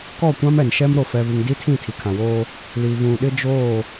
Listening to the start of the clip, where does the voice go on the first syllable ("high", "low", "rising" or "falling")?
falling